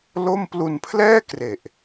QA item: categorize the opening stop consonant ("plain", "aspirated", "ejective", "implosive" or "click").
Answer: plain